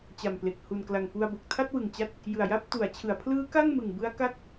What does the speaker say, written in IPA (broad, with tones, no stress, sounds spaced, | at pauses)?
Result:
t͡ɕ a˨˩ m p l e˨˩ k̚ h u˨˩ n k l a˨˩ ŋ p u˧ a̯ b o˨˩ k̚ tʰ a˥˩ t̚ w ɯ˨˩ ŋ t͡ɕ a˦˥ t̚ | j ɯ˨˩ a̯ j a˥˩ p̚ t u˩˦ a̯ t͡ɕʰ ɯ˩˦ a̯ pʰ l ɯː˦˥ k a˥˩ ŋ m ɯ˨˩ ŋ b ɯ˦˥ a̯ k a˥˩ k̚